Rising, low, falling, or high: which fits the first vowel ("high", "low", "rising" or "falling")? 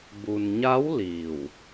low